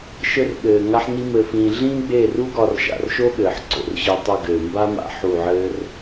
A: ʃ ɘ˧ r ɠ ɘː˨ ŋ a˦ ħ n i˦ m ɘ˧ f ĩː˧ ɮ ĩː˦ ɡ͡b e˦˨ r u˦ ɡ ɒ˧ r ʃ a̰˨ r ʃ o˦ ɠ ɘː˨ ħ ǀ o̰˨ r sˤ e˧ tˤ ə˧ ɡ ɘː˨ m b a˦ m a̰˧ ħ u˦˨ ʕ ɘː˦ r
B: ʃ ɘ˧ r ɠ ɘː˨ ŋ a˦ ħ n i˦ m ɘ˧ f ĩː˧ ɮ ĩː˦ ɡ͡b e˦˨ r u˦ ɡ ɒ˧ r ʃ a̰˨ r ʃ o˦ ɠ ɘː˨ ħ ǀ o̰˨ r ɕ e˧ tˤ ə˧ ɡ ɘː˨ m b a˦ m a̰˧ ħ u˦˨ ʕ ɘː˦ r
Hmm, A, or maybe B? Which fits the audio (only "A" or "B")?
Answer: B